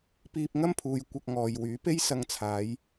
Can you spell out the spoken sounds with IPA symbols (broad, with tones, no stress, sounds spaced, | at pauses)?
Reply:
p iː˧ p̚ ŋ ɐ˥ m pʰ uː˨ j kʷ ɐ˧ k̚ ŋ ɔː˨ j w yː˨˥ p e˥ j s ɐ˧ ŋ t͡sʰ aː˨˧ j